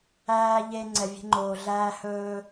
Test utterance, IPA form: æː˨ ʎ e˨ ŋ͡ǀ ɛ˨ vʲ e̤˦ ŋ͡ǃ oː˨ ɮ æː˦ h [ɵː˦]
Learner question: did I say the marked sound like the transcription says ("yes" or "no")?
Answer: yes